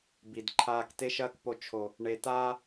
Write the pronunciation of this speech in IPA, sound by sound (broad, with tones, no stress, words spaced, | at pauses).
bi˨dǃʰaː˦k te˦ʃɐː˦kpo˧ t͡ʃʰo˨ | ɳe˨taː˦